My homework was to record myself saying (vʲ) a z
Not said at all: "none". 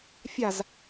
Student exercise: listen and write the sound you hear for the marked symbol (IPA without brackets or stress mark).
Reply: fʲ